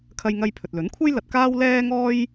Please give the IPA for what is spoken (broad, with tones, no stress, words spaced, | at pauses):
kʰɐ˧jŋɐ˧j pʰɵ˨t̚lɵ˨˥nkʷʰɐ˥jlɐ˧t̚ kaː˥wlɛː˥ ŋɔː˥j